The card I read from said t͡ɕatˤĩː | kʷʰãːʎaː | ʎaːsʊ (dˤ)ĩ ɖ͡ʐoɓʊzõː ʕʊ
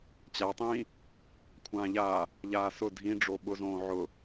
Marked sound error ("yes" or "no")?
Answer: yes